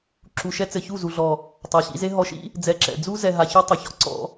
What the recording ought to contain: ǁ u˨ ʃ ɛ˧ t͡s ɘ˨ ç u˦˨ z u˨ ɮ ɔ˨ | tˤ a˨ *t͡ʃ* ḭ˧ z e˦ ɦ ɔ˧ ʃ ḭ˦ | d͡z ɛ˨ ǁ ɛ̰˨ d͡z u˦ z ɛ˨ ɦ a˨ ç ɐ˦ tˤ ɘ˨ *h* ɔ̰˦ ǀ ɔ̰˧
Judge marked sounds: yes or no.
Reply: no, no

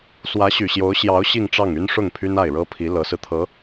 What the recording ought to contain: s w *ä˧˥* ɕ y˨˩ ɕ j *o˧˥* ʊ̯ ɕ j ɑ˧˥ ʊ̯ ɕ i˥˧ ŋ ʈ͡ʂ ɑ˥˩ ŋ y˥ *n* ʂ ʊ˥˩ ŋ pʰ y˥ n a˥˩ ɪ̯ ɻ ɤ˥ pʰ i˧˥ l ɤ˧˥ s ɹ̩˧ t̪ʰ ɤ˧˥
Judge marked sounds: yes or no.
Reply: yes, yes, yes

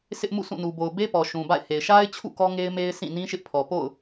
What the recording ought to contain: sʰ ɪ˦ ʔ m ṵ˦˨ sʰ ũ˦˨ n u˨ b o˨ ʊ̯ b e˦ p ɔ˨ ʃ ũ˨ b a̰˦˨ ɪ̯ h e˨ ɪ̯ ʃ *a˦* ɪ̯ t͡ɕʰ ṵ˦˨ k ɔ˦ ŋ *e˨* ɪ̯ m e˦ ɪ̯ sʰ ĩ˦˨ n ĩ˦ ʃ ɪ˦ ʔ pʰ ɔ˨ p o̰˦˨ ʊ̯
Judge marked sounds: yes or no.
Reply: yes, no

